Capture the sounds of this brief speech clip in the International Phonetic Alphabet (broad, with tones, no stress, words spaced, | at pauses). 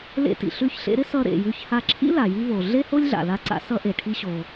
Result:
lḛ˧tḭ˩ ɬʉ˧çɬḛ˧ɾɪ˥ sʌ˧ɾḛ˩jʉ˧ç ha˧ǁʰḭ˥ la˩ji˧vo˩ ɮe˥ho˥lʲɮa̰˩la˧ ǀa̰˧sʌ˧ ʔe˩ʈʰi˧ɕo˩